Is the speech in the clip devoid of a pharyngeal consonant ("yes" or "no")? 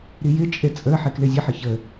no